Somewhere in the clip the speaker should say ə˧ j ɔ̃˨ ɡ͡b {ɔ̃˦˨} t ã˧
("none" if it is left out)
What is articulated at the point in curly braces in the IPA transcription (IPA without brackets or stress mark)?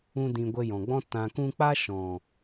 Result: ɔ̃˦